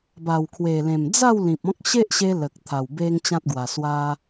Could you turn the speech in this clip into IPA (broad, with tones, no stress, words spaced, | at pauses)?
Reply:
ba˨˩wkʰwe˨˩lẽ˨˩m d͡za˥˧w lĩ˨p̚ɔ̃˦k̚ ɕe˦ʔɕe˧ lə˨k̚t̪ʰa˨˩w be˦ŋt͡ɕã˦t̚ɡwa˨˩ swa˧